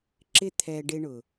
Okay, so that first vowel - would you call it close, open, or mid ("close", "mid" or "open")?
close